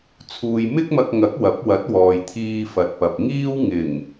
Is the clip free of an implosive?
yes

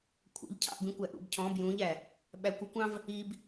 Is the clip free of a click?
yes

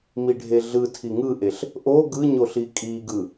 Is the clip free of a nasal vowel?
yes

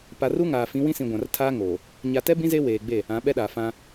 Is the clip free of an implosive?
no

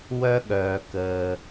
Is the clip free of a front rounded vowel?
no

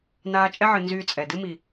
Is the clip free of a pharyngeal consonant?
no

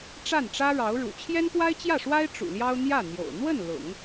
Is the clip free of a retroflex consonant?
no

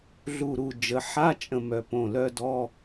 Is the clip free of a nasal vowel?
no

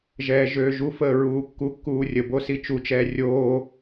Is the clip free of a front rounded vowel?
no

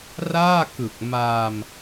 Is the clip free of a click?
yes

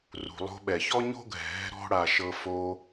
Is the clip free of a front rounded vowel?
yes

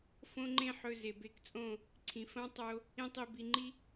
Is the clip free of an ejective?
no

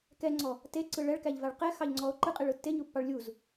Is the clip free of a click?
no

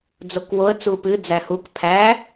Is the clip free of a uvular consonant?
yes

